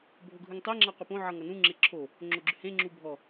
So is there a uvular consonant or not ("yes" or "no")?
yes